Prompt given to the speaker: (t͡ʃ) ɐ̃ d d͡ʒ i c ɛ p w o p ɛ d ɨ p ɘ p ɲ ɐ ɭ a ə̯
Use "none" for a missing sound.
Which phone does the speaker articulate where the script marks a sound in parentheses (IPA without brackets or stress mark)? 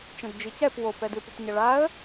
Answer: t͡ʃ